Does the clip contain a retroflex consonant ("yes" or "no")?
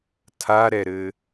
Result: no